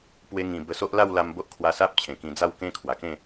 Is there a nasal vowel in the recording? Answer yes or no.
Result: yes